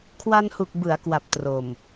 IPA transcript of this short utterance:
kʰwa˧nhu˨˩k̚ bɯ˩˦a̯kwa˨˩p̚ tro˨˩m

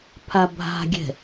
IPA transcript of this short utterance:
pʰabʱa̤ɡʲɛ̤

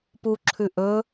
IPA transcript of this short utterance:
puǁʰʉ ʔɵ

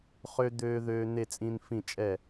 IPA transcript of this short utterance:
χø˦ d̪øː˦ðøː˦n̪e˥˨t͡sʼĩ˦n fĩ˥˨t͡ʃʼɛ˥˨

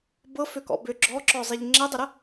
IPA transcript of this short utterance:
bɤføkɔ̰ bʏ ɡ͡ǁɔǁɔzˤiʎ ŋ͡ǁɛdˤəɾə

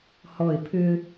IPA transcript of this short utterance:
hɔɪ̯ pʰʏ

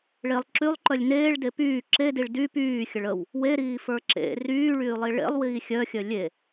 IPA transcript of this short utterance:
ɭelˠ ǁylˠǃœlʲ neːɭde pyː ǁediɭ dy pyːxʲəɭ əw | weɾiːfə˞ ǁḛ ryːɭyːlˠi ɭḛlˠwiː xʲœxʲœ lʲe

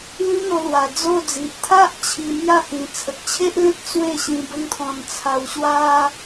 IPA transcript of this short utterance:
lĩ˦n̪o˧lwa˨˩ d͡zo˥˧d͡zi˨ʔ t̪ʰa˦ʔ t͡ɕʰi˧mja˥˧hĩ˨˩ t͡sʰə˨k̚t͡ɕʰe˦ʔlẽ˦t̚ t͡swe˥˧ɕĩ˧ bə˦ŋt̪ʰɔ̃˧n t͡sʰa˧wɕwa˦

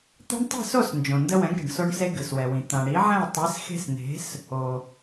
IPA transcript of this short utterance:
t̪e̤˦ɳtˤi̤˥˨so˥˨s nd͡ʒõ˩ndə˦wɛ̃˩˥ɡ ɾi̤˩ɳso˦ɳse˦ ɡɨ˩swɛ˩wĩ˩ t̪ã˩ɽi˩˥ʕɛ̃˥˨ɪ̯ tˤi˩˥sxe̤˦sn̪e̤˩˥s | o˩

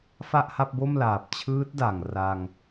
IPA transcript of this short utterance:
fa˥˩ʔha˥˩p̚bo˥˩mlaː˨˩p̚ t͡ɕʰɯː˦˥t̚da˨˩ŋ ra˧ŋ

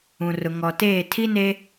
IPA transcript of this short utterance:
ũ˨rʊ˨ŋɔ˨teː˦˨ tʰi˦neː˦

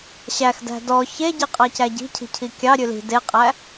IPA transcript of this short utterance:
ɕæxdæ̤ dɔ çeɟiqʼɑcæ ɟi̤cʰi̤cʰi kʲɑ ɾʲʉli̤ deqʼæ

